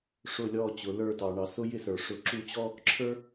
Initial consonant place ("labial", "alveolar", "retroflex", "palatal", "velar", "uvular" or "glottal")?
retroflex